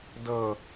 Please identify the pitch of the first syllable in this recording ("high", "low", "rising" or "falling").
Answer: falling